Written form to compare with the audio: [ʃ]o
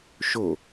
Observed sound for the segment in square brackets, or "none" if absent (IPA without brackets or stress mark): ʃ